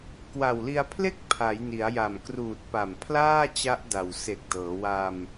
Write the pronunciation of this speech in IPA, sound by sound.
k w a˨˩ w l i˧ a̯ pʰ l e˥˩ k̚ pʰ a˩˦ j n i˩˦ a̯ j a˨˩ m k r uː˨˩ t̚ p a˨˩ m pʰ l aː˥˩ t͡ɕ a˦˥ ʔ d a˨˩ w s e˨˩ k̚ d ɤː˩˦ w a˧ m

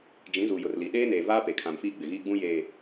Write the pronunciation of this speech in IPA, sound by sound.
d͡ʒ ĩ˨˦ z u˨ j ʊ˨ r l i˨ ɗ eː˦ n eː˨ v aː˦ p e˨ kʰ ã˨ m f iː˦ ɡ͡b ɪ˨ ɣ iː˦ ɡ͡b ũ˦ j eː˨

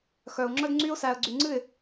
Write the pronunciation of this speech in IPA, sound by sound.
x œ˨ ʊ̯ ŋ͡ǁ œ˦ d ŋ͡ǀ y˦ ʊ̯ s æ˨ ə̯ ɡ͡ǀ y˨ ŋ͡ǀ ɨ˦˨ ɪ̯

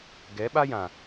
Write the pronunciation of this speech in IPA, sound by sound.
ɡ ɛ˨˦ ɓ a˦ j ã˨

